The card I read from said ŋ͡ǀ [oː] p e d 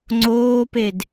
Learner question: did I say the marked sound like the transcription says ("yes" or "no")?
yes